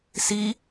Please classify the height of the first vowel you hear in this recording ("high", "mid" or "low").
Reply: high